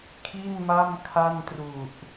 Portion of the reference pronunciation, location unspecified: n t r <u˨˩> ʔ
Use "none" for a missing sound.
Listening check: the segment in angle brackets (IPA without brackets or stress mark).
u˨˩